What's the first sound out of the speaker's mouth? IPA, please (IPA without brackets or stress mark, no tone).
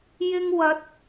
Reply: j